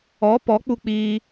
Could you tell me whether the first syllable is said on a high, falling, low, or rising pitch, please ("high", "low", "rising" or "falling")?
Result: rising